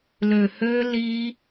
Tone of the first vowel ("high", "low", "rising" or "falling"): low